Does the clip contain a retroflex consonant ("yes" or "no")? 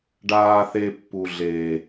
yes